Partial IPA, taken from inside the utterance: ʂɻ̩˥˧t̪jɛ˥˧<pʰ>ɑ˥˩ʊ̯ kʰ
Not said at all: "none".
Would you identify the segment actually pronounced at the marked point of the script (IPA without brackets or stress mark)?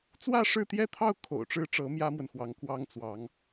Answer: t̪ʰ